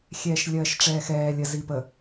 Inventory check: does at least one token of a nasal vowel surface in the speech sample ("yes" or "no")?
no